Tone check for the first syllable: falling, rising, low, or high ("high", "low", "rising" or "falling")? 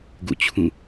falling